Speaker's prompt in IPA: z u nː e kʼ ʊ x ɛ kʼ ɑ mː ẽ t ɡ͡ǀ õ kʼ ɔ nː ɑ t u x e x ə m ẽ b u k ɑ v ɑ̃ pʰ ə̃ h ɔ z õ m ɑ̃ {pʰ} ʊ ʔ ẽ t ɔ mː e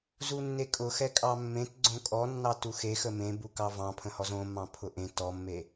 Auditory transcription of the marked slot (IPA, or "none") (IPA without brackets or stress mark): pʰ